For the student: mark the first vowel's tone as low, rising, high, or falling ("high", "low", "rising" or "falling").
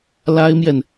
high